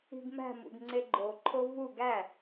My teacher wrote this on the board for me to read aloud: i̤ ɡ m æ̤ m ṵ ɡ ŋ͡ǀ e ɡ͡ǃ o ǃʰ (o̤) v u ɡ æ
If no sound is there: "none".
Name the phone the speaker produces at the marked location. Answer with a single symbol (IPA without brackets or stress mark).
o